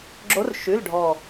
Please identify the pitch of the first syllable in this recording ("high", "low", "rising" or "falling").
rising